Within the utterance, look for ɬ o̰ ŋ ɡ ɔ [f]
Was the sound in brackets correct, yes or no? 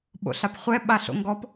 no